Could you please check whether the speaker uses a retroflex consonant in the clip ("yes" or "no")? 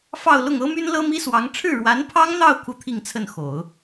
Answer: yes